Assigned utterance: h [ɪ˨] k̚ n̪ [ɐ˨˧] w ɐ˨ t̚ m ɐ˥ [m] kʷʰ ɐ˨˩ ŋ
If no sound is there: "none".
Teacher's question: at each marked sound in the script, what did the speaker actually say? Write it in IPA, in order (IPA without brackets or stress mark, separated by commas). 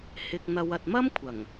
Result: ɪ˨, ɐ˨˧, m